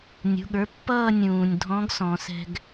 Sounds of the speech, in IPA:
nʲṳ˩˧˩ɠə˞˩˧˩pːʌː˥˧ nʲũː˩nʲ dʱɔ̃˧˥ɡsɔ̃˩˧sɛ̤˧ɡ

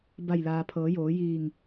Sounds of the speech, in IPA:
ba˧˩jlaː˩pʰɤː˩˧joː˩˧ jiː˧˩ŋ

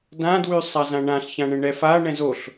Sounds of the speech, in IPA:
dãdwy sˤazãɳãɬ çãɳɛ̃ɳɛfa ɳɛ̃zoɬ

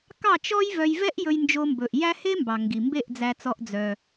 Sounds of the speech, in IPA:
kɑ˥˩ t͡ʃɔ˥jvœ˧j vɛ˥ʔ jɵ˧jnd͡ʒo˧mbɵ˩ʔjæ˥ he˥mbɑ˩ ŋɡi˩mbe˥˩ʔd͡zæ˧t͡sɔ˧ʔ d͡zœ˩

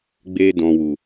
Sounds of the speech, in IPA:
ɡ͡be˧dɔ̃˨ wu˨

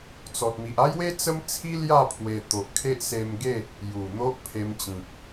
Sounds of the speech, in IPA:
t͡sɔ˨t̚mi˨ʔa˦jwe˦ t͡sə˦mt͡sʰi˦lja˥˧ pʰwe˧ t̪o˨ʔkʰe˦ʔse˧mɡe˥˧ | ju˨˩n̪o˦ʔpʰe˧mt͡ɕĩ˨k̚

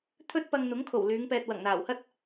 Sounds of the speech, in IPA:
t̪ʰɵ˥t̚ pɐ˧ŋn̪ʊ˨˥ŋkʰo˨˩w lyː˨˧ŋpɛː˨t̚ wɐ˨˩ŋn̪aː˨˩whɐ˥t̚

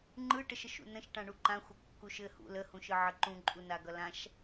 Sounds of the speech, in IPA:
ŋ͡ǃɯʈəʃəʃ ṵnə̃ʃʈã ɳuǃãxʷʌ kːuʃɘ hṵ ləhũʃɯ ʕəǃũǃʼu naɡʌlãʃ

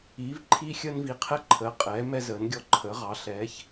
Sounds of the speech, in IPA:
iː˩˧v ǃʰiː˧xʲəː˧nvi˩˧qʰɛ˧ ǃʰəː˩˧qʼɛː˩˧ mɛ˧zəː˩˧nɡʲɔ˧ ǃʰəː˩˧ʁɑ˩˧ ɬɛː˩˧ç

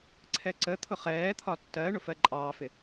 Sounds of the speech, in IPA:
ǀʰɛǀə t̪ʰʊχɛː t̪ʰɒtːɜɳʊ fɜǃʼɑːfɪ

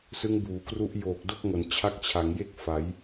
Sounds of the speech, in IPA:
sɯ˦˥ŋbuː˩˦kru˦˥ʔjoː˨˩k̚ do˥˩k̚ŋo˩˦n t͡ɕʰa˥˩k̚ t͡ɕʰa˩˦ŋje˥˩k̚fa˩˦j

